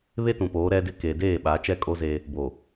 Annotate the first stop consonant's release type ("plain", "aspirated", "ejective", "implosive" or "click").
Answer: plain